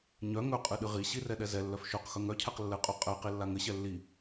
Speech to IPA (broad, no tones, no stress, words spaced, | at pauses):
ɲœ ŋɵqʼɨ ɗɨʁiɕi rɛɗɛzɛlːœf ʃɵq xɵŋœcʰɛq lːɘqʼœ qʼɛqi lːaŋɘɕɛ lːi